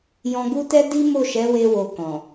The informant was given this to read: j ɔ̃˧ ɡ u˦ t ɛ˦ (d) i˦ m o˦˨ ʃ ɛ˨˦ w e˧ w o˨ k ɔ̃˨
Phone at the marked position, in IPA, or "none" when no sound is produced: d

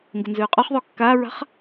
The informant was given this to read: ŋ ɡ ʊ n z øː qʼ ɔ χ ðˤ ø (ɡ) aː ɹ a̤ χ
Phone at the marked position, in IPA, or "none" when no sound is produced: kː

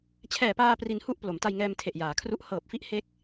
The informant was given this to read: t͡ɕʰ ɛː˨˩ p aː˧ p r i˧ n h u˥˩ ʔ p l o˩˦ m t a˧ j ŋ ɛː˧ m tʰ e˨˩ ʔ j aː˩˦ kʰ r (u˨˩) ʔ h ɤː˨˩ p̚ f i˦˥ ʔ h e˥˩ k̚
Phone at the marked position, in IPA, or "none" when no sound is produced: u˦˥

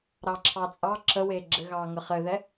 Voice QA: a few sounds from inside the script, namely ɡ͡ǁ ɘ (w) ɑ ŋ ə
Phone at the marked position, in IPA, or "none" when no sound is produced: ɣ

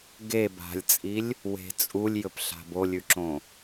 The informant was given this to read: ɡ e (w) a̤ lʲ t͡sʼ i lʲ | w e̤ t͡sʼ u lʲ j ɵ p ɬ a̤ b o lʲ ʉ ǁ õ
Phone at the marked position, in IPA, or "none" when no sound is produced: b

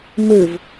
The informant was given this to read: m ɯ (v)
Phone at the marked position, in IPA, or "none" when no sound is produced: v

